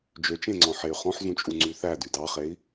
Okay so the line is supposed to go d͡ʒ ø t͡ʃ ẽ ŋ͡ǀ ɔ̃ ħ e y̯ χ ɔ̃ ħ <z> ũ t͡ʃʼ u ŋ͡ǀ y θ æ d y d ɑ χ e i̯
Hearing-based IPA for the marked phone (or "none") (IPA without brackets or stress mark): z